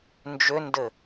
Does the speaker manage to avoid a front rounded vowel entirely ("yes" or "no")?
no